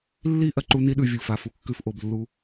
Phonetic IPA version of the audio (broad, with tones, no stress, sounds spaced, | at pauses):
lː i˦ ʔ ɐ˨ ǃ u˦ n i˦ ɗ ʉ˨ vʲ u˨ f a˨ f u˨ kː ʉ˦ f ʔ o˨ b lː u˦